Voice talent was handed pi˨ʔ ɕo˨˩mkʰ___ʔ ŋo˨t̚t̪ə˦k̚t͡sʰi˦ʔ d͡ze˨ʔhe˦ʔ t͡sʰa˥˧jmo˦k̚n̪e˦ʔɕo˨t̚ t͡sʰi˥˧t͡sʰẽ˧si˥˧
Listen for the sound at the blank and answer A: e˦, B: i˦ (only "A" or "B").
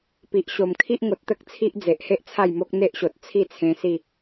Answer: B